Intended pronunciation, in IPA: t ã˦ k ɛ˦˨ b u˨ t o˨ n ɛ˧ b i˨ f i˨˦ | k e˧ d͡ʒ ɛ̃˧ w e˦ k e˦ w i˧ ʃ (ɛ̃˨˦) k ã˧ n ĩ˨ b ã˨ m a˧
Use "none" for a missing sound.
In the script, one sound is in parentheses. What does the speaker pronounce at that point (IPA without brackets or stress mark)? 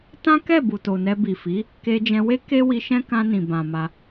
ɛ̃˦